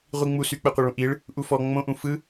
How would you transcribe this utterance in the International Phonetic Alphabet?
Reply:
ʁʷ i ŋ͡m u s y k͡p ɛ qʷ ɛ ɭ ũ ʔ i ɭ | ʔ u f ɔ ŋ͡m õ ʔ ũ f ɯ

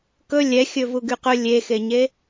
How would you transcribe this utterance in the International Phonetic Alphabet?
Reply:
k ɵ lʲ ɛ xʲ ɵ v u ɡ y q ɵ lʲ e x e ɲ e

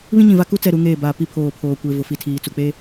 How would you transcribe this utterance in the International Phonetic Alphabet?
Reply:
β ĩ˦ ɲ ĩ˨ v a˦ k u˦ t͡s ɛ˦˨ ɾ u˨˦ ŋ eː˦˨ b aː˨ p i˦ pʰ oː˨ pʰ oː˨ kʷ e˨ v ʊ˨ f i˨ tʰ iː˨ t͡s u˨ k͡p e˦

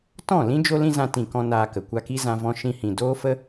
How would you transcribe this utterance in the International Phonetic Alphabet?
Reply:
t ɔ̃˦˨ l ĩ˦ d͡ʒ o˦ l ĩ˦ z ã˧ t ĩ˨ k ɔ̃˦ n aː˧ k ə˨ kʷ a˧ k i˦ z ã˧ v ɔ̃˧ ʃ ĩ˧ h ĩ˨ d oː˦ f ə˦

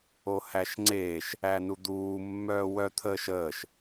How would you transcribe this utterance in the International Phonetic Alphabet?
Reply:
o h æ ʃ ŋ͡ǀ eː ʃ | æ n u d̪ uː mː œː w œ t̪ʰ əː ʃ əː ʃ

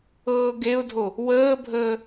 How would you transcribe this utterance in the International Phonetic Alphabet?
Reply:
ɤː ɡ e ʊ̯ dʱ o | w əː bʱ əː

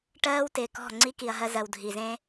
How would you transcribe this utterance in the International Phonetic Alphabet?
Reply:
ʈ ɜː˦ w t ɪː˨ k ɔ̤˦˨ ŋ͡ǀ i˦ k i˨ ɐ̯ ɦ ɜ˧ z ɜ˨ w dʱ i˨ z ẽ˦

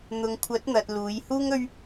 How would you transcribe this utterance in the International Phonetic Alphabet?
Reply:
n̪ ʊ˨ ŋ kʷʰ ɐ˨˥ t̚ n̪ ɐ˨ t̚ l uː˨˧ j h uː˥ ŋ ɵ˥ ɥ

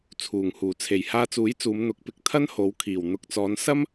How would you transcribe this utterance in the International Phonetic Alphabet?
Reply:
t͡sʰ uː˨˩ ŋ h uː˨˩ t͡sʰ e˨˩ j h aː˧ t͡s uː˨˥ j t͡s uː˨˧ m n̪ ʊ˨˥ k̚ p ɪ˨˥ k̚ t̪ʰ ɐ˥ n h o˨˧ w kʰ iː˨˩ w n̪ ʊ˨ k̚ t͡s ɔː˨˧ n s ɐ˥ m

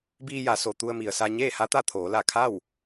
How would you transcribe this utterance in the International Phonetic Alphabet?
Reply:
b iː˧ j a˩˧ s o˩ t̪ u˧ ə̯ m i˩ ə̯ s a˧ ɲ eː˥˨ h a˧˥ t̪ a˥˨ t̪ʰ oː˩˧ l a˧˩ kʰ a˥˨ w

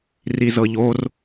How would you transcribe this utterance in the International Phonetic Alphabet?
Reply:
r i z ɤ ʎ o r

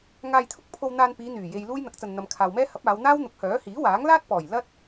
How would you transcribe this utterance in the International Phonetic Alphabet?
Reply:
ŋ aː˧ j t̪ʰ ʊ˥ k̚ pʰ o˧ w n̪ aː˧ n p iː˨˧ n̪ yː˨˩ j e˧ j l uː˥ j n̪ ɐ˨˥ k̚ t͡s ɐ˨ n n̪ ɐ˨ m kʰ aː˨ w m ɛː˥ h ɐ˨˥ p̚ aː˨˧ w n̪ aː˥ w n̪ ʊ˨˥ k̚ h œː˨˥ h iː˨˥ w aː˨˥ ŋ l aː˥ t̚ p ɔː˨˩ j l ɐ˥ t̚

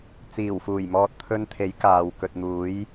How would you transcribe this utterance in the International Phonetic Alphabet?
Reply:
t͡s iː˨˩ w f uː˨˩ j m ɔː˨ t̚ t̪ʰ ɵ˧ n t̪ʰ e˨˥ j k aː˨ w k ɵ˨ t̚ n̪ uː˨˥ j

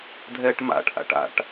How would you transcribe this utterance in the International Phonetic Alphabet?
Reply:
dʱ ɛː ʈ m a̰ ʈ ʔ a̰ ʈ a̰ ʈ

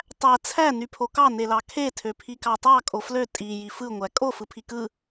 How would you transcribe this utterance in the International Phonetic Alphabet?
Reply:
tˤ æ t͡sʰ æ n y pʰ o k ɑ n e l ɑ kʰ e tʰ ø pʰ i k ɑ tˤ ɑ kʼ o f l ø tʼ i j i f ɯ ŋʷ æ kʼ o f ɯ pʰ i k ɯ

